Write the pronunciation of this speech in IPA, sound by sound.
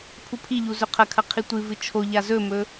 pʰ u pʰ i ʎ u z ɵ qʰ ɐ kʰ ɐ qʰ i tʷ ɨ v ɨ t͡ʃʰ o ʎ a z ɵ m ɵ

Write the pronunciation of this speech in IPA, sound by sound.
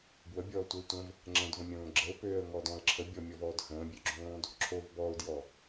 b w ə bʲ ɔː tʷ ə ɪ̯ tʷ ə̃ v | ŋ͡ǁ ə̃ d v ə̃ mʲ õː ɡ͡ǁ ə ʊ̯ p øː ə̯ ŋ ɔː d ɔ̃ ə̯ ǁʰ ə bʲ ɔ mʲ ɔ v ɔː d h ə̃ː bʲ ø ɡ͡ǁ õː d | ǁʰ o v b ɔ ʊ̯ d j ɔ

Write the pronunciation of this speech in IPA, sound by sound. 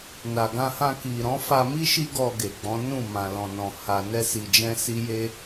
n a˨ ɡ ã˧ h ã˧ k i˨ ɾ ɔ̃˨˦ f a˧ m i˦ ʃ i˦ ɡ ɔ˧ ɡ e˨ ɡ͡b ɔ̃˨˦ n ũ˦˨ m ã˧ l ɔ̃˧ n ɔ̃˧ h a˧ n ɛ˦ s i˧ d͡ʒ ɛ̃˦ s i˦ j e˦

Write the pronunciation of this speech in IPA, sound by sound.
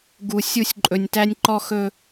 ɡ u˨ sʲ u˦˨ sʲ ǃʼ ɵ˨ nʲ t æ˦ nʲ ǃ ɔ˦ x ɵ˦

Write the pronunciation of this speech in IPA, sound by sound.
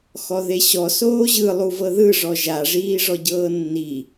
x ɔ ð e ɕ ɔ s oː ʑ ɯ lˠ u v ɤ ð ɯ ʐ ɔ ʒ a ʐ iː ʐ ɔ ɟ ɤː nː i

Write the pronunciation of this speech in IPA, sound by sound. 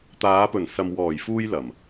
t̪ aː˨˧ p ɵ˨˩ n s ɐ˨ m w ɔː˨˩ j f uː˥ j l ɐ˨˩ m

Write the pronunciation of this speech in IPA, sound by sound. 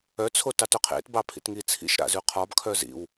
œ t͡sʰ o t ɑ t œ qʰ ḛ t b ɑ pʰ ḭ t ŋ i t͡sʰ ḭ ʃ ɾ a̰ z ʉ qʰ ɒ b kʰ œ z ḭ w

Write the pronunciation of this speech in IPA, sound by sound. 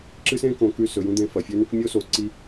ǁ ɨ˦ s ẽ˦ k õ˧ k ʉ˦˨ s ɵ˨ j ũ˧ d̪ ẽ˧ f ɐ˨ fʲ ɵ˦ n ɨ˦ k mʲ o˦ s o˨ ǀ i˦

